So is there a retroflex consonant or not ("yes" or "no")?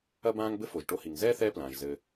yes